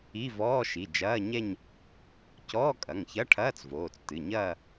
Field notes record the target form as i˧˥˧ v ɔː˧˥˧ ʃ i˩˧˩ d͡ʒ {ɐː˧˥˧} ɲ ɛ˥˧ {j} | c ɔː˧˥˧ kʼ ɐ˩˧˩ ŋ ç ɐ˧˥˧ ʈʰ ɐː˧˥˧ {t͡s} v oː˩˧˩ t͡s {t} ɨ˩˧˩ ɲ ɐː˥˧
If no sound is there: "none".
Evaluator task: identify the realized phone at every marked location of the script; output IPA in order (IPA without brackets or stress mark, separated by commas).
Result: ɐː˧˥˧, ɲ, t͡s, t